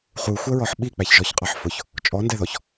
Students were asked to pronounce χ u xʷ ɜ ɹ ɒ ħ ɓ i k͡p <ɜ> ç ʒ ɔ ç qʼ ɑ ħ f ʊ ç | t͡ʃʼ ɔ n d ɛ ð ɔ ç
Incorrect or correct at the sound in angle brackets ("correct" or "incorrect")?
incorrect